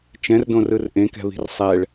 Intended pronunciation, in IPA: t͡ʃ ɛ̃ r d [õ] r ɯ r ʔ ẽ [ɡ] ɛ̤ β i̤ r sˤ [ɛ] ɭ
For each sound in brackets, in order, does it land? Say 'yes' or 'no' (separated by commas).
yes, no, yes